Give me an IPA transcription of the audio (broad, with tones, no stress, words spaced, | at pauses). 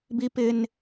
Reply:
bi˦pɪ˦n